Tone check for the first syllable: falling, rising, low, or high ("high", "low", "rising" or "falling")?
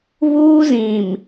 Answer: high